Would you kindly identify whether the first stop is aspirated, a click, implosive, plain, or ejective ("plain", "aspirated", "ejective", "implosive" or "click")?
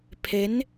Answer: aspirated